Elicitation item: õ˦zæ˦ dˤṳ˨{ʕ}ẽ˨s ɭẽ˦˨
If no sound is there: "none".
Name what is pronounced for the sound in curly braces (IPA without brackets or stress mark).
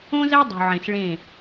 ʕ